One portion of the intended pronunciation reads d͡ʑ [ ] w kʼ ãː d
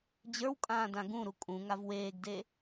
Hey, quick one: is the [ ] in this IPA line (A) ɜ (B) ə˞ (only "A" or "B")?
B